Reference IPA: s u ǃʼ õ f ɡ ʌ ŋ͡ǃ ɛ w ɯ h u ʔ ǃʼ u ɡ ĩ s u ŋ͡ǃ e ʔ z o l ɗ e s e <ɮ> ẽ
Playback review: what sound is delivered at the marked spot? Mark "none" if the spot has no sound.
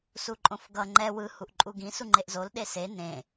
n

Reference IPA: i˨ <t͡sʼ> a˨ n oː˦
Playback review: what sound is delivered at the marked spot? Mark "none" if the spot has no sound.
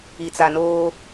t͡s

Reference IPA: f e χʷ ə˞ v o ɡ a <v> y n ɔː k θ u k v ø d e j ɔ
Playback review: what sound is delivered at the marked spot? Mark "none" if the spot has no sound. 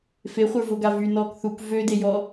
v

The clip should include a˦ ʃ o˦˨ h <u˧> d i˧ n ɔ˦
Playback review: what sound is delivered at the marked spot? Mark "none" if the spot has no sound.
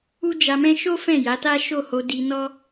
o˧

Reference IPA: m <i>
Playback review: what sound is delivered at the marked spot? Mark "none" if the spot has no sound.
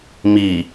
i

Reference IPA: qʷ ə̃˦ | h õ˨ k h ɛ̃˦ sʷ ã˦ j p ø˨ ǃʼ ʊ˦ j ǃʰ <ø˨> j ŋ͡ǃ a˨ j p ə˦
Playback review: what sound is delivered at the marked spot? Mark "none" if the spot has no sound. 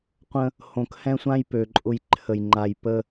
ə˨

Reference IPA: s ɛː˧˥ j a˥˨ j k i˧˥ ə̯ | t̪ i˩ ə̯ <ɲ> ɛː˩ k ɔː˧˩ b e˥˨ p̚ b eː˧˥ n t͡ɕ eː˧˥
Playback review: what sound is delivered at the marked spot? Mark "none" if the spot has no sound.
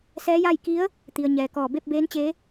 ɲ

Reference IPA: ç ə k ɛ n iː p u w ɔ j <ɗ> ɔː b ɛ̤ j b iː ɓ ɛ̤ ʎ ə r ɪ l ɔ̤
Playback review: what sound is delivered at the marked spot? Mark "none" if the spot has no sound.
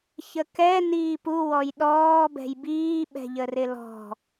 ɗ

